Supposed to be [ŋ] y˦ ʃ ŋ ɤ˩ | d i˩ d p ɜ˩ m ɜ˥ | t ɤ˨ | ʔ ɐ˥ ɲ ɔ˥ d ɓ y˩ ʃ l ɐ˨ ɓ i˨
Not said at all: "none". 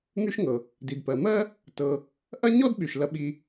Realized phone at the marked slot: ŋ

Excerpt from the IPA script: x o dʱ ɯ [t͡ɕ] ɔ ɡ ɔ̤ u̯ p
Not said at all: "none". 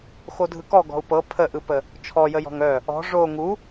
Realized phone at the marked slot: k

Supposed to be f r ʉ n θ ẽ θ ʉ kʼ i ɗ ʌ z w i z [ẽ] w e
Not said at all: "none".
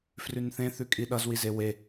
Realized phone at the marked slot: e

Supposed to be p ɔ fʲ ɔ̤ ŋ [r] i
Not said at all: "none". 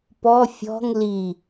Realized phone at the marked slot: l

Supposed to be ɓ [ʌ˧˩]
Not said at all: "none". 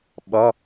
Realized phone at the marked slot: ʌ˧˥˧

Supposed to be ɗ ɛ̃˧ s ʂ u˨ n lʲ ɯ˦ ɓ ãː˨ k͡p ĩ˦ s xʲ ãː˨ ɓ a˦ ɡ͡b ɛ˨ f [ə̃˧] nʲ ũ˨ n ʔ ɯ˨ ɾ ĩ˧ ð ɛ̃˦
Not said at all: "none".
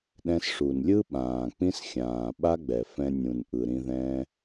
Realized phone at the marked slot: ɛ̃˧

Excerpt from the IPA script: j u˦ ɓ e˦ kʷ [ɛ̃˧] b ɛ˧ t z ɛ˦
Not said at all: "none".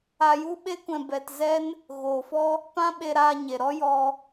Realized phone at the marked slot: ɛ̃˧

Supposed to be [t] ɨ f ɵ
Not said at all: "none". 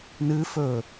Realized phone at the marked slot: n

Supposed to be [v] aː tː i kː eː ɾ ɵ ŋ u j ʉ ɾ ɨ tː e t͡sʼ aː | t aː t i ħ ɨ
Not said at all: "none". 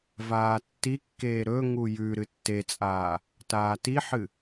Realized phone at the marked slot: v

